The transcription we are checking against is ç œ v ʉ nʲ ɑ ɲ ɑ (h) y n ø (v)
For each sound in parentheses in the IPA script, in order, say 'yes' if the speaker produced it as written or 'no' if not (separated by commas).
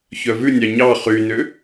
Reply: no, no